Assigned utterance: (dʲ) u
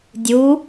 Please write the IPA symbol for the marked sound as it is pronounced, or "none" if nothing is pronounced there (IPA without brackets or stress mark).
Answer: dʲ